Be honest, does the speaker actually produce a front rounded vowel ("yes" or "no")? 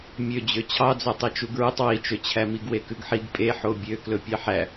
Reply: yes